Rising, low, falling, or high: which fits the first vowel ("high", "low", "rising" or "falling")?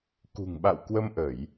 low